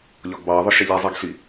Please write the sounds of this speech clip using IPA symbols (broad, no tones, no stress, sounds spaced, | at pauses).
ʎ ɒ ɡ b ɑ ðˤ ʊ ʃ ɛ ʎ i zˤ i ɡ ɬ i